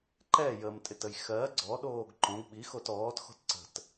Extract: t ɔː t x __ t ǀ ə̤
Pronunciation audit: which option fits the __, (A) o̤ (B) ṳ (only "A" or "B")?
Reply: A